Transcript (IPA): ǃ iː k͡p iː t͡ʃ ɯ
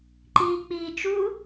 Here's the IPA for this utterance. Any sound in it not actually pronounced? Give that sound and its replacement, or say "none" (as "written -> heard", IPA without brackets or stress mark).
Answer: ɯ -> u